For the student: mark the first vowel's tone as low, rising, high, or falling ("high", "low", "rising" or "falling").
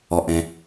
low